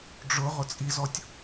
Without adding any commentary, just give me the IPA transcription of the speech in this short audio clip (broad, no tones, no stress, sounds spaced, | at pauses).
ɖ͡ʐ ʊ ʁ ʊ t͡sʼ i z ɔ tʲ